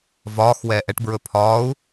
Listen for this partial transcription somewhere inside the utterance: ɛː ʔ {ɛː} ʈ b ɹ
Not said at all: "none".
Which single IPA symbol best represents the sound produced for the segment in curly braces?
ɛ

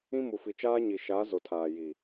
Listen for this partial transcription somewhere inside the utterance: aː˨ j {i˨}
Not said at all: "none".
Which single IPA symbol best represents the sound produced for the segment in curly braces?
i˨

